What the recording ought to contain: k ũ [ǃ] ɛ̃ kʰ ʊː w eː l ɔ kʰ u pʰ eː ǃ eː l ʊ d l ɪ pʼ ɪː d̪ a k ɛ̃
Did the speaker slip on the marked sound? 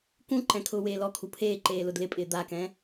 no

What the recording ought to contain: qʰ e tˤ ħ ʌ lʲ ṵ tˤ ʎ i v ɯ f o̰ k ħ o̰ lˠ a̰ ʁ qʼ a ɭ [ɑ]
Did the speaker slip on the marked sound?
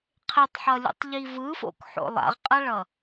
yes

